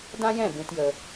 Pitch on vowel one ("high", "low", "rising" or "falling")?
high